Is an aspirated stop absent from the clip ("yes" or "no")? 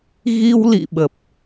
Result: yes